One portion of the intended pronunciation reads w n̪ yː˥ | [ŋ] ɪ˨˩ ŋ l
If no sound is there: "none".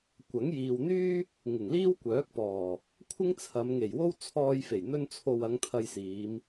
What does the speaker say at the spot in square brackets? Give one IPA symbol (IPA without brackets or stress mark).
ŋ